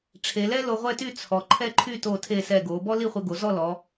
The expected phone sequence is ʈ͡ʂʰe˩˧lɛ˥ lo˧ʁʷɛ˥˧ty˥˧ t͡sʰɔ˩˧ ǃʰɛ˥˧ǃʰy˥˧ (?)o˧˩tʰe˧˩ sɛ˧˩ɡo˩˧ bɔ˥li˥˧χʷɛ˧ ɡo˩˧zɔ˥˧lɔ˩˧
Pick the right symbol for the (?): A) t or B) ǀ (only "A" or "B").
A